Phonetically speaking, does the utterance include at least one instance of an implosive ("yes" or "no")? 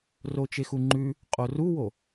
no